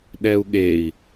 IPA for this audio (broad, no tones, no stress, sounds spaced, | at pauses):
ɗ ɛ u̯ ɠ e i̯